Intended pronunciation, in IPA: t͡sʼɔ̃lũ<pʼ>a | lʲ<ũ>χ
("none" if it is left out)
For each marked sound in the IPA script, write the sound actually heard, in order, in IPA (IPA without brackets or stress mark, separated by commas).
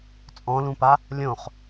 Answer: p, õ